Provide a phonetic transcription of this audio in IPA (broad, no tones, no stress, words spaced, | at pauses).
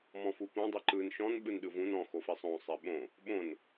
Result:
mɔ̃fupõ dˤiǃɯn ʃɔ̃n ɓɯnɗɯvũn ɔ̃ xofisˤõ sˤeɓõ | ɓõn